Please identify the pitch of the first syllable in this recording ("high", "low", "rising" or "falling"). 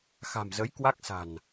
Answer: low